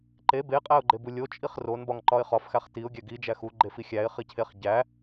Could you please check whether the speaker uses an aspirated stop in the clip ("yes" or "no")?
yes